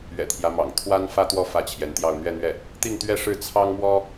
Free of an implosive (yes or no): yes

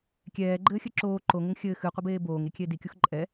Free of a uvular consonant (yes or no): no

